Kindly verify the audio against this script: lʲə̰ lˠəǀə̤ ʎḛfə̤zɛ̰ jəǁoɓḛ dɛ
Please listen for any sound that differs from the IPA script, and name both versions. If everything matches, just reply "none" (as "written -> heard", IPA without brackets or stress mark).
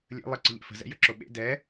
none